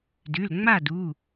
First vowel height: high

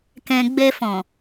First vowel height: mid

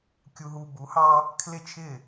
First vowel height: high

